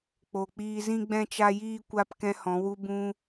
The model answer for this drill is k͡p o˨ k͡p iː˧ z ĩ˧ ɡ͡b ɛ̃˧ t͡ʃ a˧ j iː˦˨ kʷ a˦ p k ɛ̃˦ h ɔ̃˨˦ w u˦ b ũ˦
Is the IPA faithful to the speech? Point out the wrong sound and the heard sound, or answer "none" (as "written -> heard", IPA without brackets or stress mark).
none